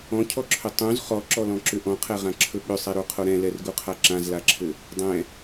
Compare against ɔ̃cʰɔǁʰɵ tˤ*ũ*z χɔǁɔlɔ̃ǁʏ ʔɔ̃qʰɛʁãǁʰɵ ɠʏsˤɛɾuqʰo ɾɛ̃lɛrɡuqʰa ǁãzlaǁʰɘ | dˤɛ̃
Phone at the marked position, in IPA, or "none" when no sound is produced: ũ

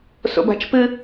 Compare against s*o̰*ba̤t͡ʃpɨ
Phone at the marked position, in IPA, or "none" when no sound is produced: o̰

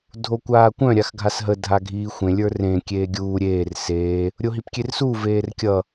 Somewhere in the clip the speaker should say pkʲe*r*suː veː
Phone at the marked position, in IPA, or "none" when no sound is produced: r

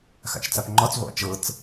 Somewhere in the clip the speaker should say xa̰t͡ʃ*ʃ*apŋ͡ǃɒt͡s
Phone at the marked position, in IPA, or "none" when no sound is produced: t͡s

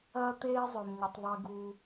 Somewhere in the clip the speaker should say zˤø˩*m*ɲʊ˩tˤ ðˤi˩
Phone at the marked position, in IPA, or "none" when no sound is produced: m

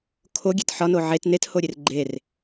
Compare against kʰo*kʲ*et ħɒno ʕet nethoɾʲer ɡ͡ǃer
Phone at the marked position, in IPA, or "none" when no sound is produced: ɡʲ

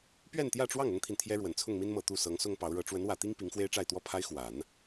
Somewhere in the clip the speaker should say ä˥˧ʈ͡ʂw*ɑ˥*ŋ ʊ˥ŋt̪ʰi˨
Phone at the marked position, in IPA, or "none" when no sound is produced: ɑ˥˩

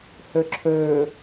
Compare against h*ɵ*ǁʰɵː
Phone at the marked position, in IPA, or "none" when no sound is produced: ɵ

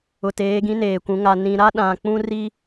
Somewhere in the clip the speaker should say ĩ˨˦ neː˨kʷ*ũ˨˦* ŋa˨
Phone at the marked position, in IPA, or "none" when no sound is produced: ũ˨˦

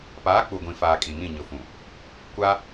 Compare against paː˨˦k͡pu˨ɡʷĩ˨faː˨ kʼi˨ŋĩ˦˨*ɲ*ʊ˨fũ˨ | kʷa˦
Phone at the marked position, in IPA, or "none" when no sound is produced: ɲ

